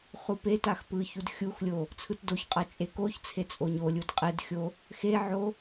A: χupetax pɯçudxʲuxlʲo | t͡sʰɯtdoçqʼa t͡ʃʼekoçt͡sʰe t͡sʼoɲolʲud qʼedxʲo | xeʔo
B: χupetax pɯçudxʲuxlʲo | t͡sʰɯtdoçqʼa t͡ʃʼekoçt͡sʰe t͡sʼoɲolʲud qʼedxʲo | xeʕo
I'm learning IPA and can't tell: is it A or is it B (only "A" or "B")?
B